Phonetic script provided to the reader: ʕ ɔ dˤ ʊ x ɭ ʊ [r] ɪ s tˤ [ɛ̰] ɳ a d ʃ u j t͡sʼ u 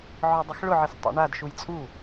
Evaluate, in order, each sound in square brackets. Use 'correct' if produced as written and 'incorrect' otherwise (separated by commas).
incorrect, correct